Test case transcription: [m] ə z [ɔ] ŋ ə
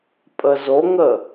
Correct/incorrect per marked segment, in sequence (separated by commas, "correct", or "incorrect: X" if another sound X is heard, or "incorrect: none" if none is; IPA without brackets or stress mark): incorrect: pʼ, incorrect: o